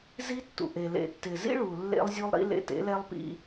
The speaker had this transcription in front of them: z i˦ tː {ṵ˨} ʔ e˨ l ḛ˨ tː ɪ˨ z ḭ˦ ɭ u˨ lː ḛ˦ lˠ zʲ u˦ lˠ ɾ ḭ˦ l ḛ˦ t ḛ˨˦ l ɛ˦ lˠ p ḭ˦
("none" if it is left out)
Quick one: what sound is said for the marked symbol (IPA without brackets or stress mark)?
ṵ˨